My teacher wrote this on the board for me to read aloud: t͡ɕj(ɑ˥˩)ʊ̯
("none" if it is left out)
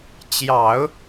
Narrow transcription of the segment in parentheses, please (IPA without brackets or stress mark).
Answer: ɑ˨˩˦